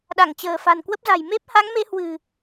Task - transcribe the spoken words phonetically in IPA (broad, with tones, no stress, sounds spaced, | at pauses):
ɗ a˧˩ ŋ t͡ɕ ə̤ː˨˩ f a̤˨˩ n k w ə˦˥ p̚ z a̤˨˩ j m e˦˥ p̚ h a˨˦ ŋ m e˨˦ h w ɨ̤˨˩